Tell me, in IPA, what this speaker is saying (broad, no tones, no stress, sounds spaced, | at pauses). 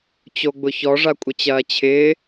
t͡ɕ o ɡ͡b ʊ ç ɔ ʐ a kʷʼ ə t͡ɕ ɐː t͡ɕʰ ɪː